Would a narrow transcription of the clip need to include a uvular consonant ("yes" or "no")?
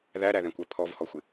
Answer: no